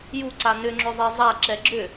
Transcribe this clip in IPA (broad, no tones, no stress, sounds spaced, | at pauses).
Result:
j u ǀ a n ʏ ŋ͡ǁ ʏ zˤ e zˤ a ǁ ɛ ɡ͡ǁ ʏ